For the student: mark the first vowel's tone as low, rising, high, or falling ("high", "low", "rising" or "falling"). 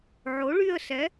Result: rising